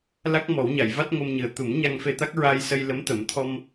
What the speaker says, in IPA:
la˦˥k̚mɔ˨˩˦wɲa˨˩˨jva˦˥t̚ ŋo˧mɲɨ˨˩ə̯ t̪u˨˩˦m ɲa˧ŋfe˧ t̪a˦˥k̚ɹa˧jsə˧j lə˧˥mt̪ə˨˩˦mt̪ʰɔ˧m

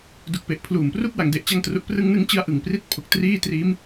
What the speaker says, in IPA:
du˨˩k̚pe˨˩ʔ pʰluː˨˩mpru˥˩k̚ wa˩˦ŋde˨˩ʔt͡ɕa˧ŋtru˨˩ʔ prɯ˧ŋnɯ˦˥ŋ t͡ɕɯ˥˩a̯ʔɯ˨˩ŋpri˥˩t̚ pʰo˨˩k̚triː˥˩ triː˦˥m

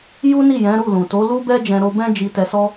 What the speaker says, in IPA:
ju˦ni˦˨ jɛ̃˨˦ɾu˦˨lũ˨ to˨˦lu˦bɛ˦ d͡ʒɛ̃˧ɾo˧bɛ̃˦ d͡ʒi˧tɛ˧sɔ˦

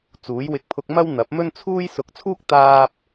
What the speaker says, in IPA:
t͡suː˨˥jwɪ˧k̚pʰʊ˧k̚mɐ˥w n̪ɐ˨˥p̚mɵ˥nt͡sʰuː˥j sʊ˨˥k̚t͡sʰuː˥k̚ t̪aː˥p̚

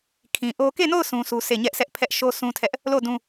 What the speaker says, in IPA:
kʰĩ˨ʔo˦ ke˦˨no˦˨ʊ̯ sũ˦su˦sʰe˦˨ ɲɛ˦ʔsʰɛ˦ʔ pʰɛ˦ʔʃo˦ sʰũ˦tʰɛ˦ʔ | lo˦˨dũ˦

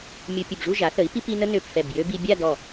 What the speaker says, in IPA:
mʲu˧ pʲə˧˩bʐu˥˧ ʒa˩˧θə˩˧i̯pi˧pi˧ nə˥nø˧˩p fɛ˧˩bjø˥ bi˧bʲa˥˧ dɔ˧˩

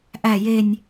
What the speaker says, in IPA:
ʔæ˨˩je˨˩nʲ

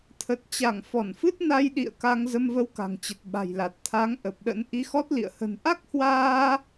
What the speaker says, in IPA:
t̪ʰə˨˩t̚t͡ɕa˧˩ŋ fɔ˧˩nfɨ˦˥t̚ na˧jɗḭ˧˨ə̯ ka˧ŋ zə˧mvə˧w ka̤˨˩ŋt͡ɕə˨˩t̚ ɓa̤˨˩jla˨˩t̚t̪ʰaː˨˦ŋ ʔə˨˩p̚ɗə̰˧˥n ʔi˨˦xɔ˦˥t̚lḭ˧˨ə̯ hə̤˨˩nʔa˦˥k̚hwaː˧

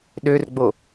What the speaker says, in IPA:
ɗørɡ͡bo

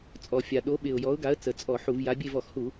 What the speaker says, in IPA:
t͡sʼɔ˧˩˧fʲa˨˩ ɗo˨˥ɓɪ˨˩ʊ̯ jɔ˨˥ʊ̯ɡa˨˥ə̯ t͡sə˨˩t͡sʼɔ˧˩˧ ħu˧˩˧vja˨˥ bʲe˦˨vɔ˧˩˧xhu˧˩˧

